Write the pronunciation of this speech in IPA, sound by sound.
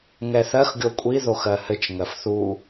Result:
ŋ ɛ θ ɜ x ɡʲ o kʷʼ i ð o x ɜ h ɘ t͡ʃ ŋ ɜ f θ u

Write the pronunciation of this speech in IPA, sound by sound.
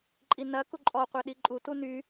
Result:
ǃʼ i n ɐ k u ǃʼ ɔ qʷ ɛ ɗ i ǃʼ u t u n y

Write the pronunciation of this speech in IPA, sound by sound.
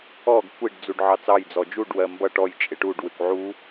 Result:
ɔ ɡ kʷ i ɖ d͡z u ɖ ʕ ɑ t͡s ɑ j d͡z ɔ d͡ʒ u ɖ w ɜ m b ʌ ʈ ɔ j t͡ʃʼ ɪ ʈ u ɖ w ɪ kʷ ʕ u

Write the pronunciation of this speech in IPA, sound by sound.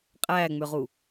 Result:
qʼ æ ŋ͡m ʏ ʁ u

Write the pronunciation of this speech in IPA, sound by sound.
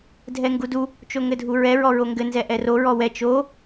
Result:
dʱ ɛ ŋ ɡ u d u | t͡ʃ o ŋ ɘ dʱ u ɹ ɛ ɹ ɔ ɹ o ŋ ɡ ɘ n z ɛ ʔ ɛ r o ɹ ɔ w ɛ t͡ʃ o

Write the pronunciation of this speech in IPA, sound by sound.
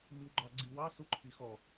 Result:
m i w ɡ͡ǃ ɑ ɡ͡ǀ i w ɑ s u ǃʰ i x ɔ

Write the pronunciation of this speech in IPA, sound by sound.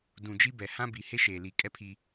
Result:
d ũ˨ d͡ʒ i˦ b ɛ˨ h ã˦ b i˨ h e˦ ʃ e˨ l i˨ kʼ ɛ˦ pʰ i˦

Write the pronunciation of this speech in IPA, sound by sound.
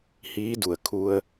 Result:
h iː˧˥ d u˧˩ ə̯ kʰ u˧ ə̯

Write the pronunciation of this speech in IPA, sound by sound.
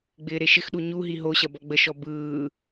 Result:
ɡ͡b ɪː ɾ e ʃ ɪ x ɗ u ɲ u ɦ i ɦ o ɕ ɐ b ɔ ɡ͡b ə ʃ ɔ b ɯː

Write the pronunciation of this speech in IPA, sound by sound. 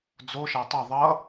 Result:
d͡z o ʃ a tˤ ʌ ðˤ ʌ

